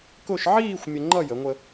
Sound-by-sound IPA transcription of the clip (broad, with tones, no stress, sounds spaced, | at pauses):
k ʊ˥˧ ʃ ʕ iː˥˧ xʷ mʲ ə˧ ŋ͡ǃ ʌ˥˧ j ə˩˧ ŋʷ ə˧